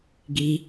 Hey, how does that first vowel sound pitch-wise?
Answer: high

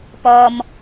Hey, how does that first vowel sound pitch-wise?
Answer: low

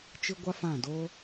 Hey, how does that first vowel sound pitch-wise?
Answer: high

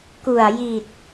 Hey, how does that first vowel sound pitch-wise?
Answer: low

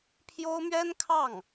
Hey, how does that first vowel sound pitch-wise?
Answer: high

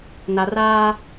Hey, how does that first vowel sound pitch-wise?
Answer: low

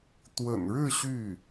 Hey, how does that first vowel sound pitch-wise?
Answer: low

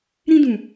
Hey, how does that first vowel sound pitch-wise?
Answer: high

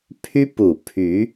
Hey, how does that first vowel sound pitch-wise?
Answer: high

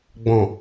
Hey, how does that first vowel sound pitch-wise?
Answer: low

